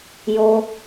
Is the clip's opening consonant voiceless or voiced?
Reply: voiced